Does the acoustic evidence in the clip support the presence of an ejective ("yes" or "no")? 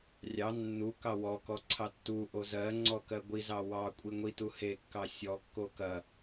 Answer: yes